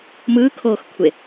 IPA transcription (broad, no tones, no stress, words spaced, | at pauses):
mɯːkʰoːxkʷʰe